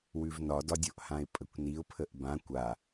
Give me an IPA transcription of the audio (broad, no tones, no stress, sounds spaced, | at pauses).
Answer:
w ʉ v n ɒ d ɒ dʲ o ʔ h ã ɪ̯ pʼ ə kʷ n i ʊ̯ pʰ ə ʔ b ã kʷ a